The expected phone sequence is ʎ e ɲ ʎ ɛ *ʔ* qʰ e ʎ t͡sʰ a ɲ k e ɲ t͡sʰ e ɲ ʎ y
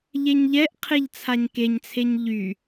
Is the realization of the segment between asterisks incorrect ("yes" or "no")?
no